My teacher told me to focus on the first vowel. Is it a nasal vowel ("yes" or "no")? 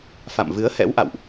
no